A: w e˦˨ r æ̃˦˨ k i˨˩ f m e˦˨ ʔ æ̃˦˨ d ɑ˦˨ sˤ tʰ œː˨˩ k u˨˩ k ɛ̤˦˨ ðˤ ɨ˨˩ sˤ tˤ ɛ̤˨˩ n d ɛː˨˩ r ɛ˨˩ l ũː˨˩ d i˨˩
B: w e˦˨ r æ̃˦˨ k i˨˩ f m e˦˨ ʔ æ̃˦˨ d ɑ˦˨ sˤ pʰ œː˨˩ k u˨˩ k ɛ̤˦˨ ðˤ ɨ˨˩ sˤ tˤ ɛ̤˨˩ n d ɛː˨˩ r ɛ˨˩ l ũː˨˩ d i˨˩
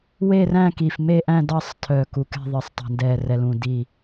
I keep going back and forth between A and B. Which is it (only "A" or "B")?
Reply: A